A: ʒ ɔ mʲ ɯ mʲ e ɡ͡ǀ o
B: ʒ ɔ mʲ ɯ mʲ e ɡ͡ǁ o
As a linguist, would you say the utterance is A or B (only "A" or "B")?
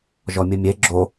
B